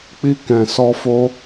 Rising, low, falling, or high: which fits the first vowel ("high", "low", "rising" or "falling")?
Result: high